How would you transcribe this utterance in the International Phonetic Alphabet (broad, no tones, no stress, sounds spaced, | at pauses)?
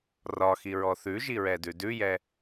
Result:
r ɒ x i ɹ ɔ θ ʉ ʒ i ɹ ɛ d ʉ d ʉ j ɛ